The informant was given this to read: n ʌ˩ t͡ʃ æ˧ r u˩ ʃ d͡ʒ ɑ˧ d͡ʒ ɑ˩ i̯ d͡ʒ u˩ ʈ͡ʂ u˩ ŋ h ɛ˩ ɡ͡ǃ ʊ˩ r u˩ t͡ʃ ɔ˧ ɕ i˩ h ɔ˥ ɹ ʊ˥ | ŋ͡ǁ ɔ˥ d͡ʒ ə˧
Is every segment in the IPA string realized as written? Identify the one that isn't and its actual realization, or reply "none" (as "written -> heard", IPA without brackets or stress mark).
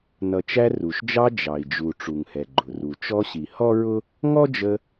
ŋ͡ǁ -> ŋ